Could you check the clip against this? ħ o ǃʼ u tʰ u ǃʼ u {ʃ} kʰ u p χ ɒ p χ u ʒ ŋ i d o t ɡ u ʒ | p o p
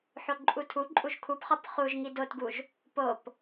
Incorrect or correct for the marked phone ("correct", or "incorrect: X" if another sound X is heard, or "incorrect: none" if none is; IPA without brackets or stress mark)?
incorrect: ʒ